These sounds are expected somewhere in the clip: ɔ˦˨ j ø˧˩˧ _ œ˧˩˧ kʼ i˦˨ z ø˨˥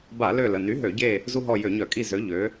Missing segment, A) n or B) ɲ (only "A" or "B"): B